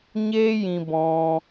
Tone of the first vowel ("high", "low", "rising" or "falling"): high